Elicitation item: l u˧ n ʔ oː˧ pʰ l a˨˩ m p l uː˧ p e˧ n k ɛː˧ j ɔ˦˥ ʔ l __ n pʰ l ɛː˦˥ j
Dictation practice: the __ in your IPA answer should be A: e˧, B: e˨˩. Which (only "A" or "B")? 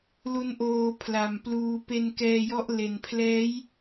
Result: B